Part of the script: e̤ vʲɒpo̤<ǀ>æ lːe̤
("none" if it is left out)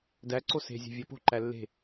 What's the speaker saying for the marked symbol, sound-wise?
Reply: ǃ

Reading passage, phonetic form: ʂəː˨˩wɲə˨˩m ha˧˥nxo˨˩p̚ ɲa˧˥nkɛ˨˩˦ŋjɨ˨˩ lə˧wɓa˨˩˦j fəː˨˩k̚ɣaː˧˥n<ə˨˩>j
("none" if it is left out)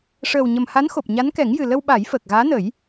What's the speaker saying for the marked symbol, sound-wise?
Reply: ə˨˩˦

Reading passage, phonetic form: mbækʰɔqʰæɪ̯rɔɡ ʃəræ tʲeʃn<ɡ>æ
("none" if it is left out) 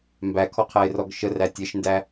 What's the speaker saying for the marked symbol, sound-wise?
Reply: d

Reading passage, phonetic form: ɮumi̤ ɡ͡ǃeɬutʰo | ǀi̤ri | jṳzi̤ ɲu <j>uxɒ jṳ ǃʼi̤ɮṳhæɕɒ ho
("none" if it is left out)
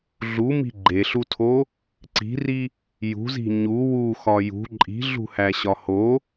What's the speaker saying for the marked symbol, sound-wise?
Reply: w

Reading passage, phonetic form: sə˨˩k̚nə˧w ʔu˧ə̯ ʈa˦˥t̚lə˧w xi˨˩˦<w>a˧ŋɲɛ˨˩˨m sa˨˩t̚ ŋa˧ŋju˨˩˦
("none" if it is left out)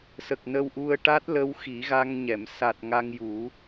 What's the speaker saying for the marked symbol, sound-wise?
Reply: ɣ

